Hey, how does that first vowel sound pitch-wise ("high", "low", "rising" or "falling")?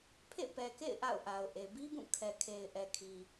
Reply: falling